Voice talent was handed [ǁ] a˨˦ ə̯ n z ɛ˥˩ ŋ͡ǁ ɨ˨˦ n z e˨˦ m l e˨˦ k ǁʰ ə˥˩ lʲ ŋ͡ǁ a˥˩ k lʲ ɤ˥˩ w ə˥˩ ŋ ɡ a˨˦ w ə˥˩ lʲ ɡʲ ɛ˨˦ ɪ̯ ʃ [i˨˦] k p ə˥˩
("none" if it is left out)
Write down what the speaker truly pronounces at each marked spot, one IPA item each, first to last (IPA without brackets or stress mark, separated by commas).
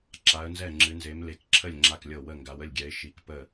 ǁ, i˨˦